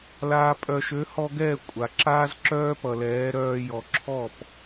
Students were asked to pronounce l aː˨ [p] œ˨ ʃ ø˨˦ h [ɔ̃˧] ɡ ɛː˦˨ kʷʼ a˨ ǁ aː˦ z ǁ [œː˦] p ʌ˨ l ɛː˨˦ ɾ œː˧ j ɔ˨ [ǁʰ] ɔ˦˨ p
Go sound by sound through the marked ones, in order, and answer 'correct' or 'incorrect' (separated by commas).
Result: incorrect, incorrect, correct, correct